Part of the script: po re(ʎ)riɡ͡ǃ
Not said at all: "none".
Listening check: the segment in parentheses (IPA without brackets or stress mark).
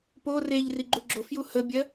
ʎ